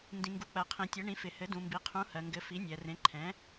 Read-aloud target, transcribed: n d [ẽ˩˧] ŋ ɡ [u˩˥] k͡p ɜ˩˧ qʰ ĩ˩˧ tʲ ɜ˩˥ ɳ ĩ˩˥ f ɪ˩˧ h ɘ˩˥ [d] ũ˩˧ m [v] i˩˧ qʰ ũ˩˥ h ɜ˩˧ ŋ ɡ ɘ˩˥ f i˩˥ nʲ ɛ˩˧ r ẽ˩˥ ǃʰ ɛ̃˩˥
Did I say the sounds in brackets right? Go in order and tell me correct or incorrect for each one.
incorrect, correct, correct, incorrect

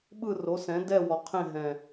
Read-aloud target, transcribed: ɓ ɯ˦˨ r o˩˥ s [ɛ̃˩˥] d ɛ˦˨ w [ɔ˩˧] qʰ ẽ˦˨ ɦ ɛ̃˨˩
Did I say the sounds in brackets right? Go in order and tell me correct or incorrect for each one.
correct, incorrect

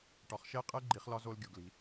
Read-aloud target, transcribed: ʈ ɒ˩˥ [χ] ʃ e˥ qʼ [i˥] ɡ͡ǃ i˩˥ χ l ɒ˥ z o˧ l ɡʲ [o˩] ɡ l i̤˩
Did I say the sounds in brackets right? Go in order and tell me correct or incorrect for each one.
correct, incorrect, correct

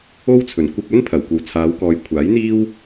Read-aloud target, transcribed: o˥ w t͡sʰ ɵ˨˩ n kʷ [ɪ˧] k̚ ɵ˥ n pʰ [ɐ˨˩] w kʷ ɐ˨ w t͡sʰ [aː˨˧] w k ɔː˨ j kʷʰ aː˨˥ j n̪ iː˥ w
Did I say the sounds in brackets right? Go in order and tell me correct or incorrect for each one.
correct, correct, correct

